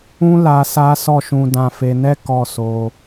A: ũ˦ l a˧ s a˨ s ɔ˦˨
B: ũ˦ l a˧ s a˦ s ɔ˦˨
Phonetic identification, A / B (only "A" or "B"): B